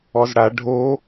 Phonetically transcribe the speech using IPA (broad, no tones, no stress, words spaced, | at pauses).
ɔzɽa ɖʱo